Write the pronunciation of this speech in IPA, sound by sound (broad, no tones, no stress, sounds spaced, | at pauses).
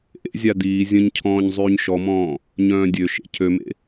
ʔ ḛ zʲ a d̪ iː zʲ ə̃ ɲ cʰ ɔ̃ː ɲ zˤ yː ɲ ʃ ɔ m ɔ̃ː | ɲ œ̃ː dʲ ø ʃ ḛ cʰ ø m ḛ